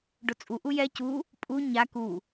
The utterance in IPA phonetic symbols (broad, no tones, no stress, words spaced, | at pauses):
ɖot͡sʼu ʔujɛ cu | pʼu ɲa ku